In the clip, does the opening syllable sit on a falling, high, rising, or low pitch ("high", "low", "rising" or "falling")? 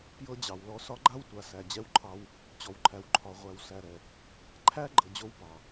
high